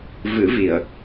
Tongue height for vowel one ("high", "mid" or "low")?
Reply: high